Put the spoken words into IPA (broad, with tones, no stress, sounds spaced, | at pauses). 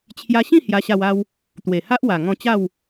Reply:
t͡ɕʰ j a˧ ɕ ĩ˥˧ h j a˧ ɕ a˧ w a˧ w | t̪ w e˨˩ h a˦ ʔ w a˨˩ ŋ ɔ̃˧ t͡ɕ a˥˧ w